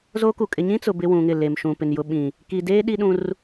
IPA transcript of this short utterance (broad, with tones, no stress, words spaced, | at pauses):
zo˦ku˨ kʼɪ˨ɲĩ˦t͡sʊ˨ bɪ˦wũ˨ŋɪ˦˨ le˨mʃũ˨pɪ˨n jʊ˨ɓĩ˨ | ki˨deː˦ ɗi˦ɗũ˦r